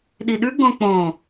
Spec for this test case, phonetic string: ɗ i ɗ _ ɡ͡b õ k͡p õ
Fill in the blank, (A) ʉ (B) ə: A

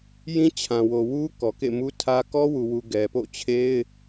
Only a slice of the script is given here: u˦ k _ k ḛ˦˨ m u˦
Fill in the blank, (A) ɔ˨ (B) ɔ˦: A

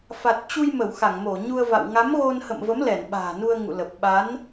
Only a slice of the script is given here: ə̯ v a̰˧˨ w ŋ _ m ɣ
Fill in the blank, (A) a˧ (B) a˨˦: B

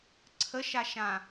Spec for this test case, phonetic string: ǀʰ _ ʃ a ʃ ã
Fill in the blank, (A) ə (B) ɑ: A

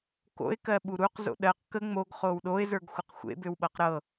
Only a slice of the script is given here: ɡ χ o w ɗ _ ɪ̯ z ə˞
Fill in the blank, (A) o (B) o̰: A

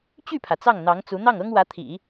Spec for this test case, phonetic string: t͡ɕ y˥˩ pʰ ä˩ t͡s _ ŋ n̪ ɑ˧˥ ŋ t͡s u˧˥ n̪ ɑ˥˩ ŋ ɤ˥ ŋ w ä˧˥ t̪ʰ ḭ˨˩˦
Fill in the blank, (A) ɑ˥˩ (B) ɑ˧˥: A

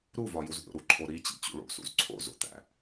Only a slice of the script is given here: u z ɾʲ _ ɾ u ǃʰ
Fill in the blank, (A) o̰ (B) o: A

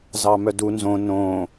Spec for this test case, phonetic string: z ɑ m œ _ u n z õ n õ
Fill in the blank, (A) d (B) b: A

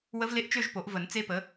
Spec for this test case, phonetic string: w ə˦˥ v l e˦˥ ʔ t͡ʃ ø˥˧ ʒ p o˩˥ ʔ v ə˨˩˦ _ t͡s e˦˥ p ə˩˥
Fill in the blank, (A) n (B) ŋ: A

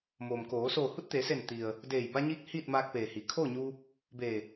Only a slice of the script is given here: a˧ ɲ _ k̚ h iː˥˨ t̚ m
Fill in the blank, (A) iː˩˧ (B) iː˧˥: B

